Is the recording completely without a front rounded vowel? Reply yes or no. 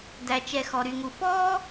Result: no